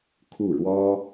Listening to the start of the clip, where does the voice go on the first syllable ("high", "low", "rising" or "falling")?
falling